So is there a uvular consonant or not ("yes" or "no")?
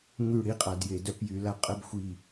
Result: yes